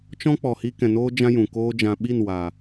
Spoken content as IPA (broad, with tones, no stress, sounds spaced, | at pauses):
t͡ʃ ɔ̃˦ k͡p ɔ˨ h i˧ k ɛ̃˨ n oː˧ d͡ʒ ã˦ j ũ˨ k oː˦ d͡ʒ ã˨ ɓ i˦˨ n w aː˨